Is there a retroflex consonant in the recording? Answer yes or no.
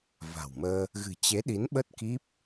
no